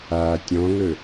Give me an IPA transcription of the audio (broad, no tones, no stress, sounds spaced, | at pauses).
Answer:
aː tʲ ɔ̃ ŋ ɵ